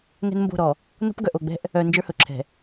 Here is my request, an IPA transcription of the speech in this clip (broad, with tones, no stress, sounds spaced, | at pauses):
ŋ ɛ̤˦ n m b o̤˦˨ ɾ ɔ˨ | n o̤˦ p ɡ œ˨ ʔ o˨ ɡ͡b ɛ̤˦ ʔ | œ˨ n d͡ʒ ə˞˦ h ɵ˨ ǁʰ ɛ̤˨